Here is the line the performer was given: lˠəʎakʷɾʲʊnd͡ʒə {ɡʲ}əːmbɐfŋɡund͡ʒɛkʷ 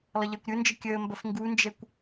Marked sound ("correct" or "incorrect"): incorrect